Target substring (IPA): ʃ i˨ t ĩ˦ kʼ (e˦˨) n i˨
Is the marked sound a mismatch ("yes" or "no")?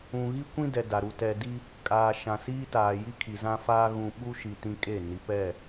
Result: no